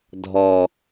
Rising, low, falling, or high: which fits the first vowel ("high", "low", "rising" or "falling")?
low